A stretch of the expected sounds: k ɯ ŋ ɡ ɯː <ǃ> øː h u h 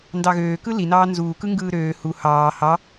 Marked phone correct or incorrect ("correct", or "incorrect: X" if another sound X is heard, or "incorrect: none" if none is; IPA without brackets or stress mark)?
incorrect: ɾ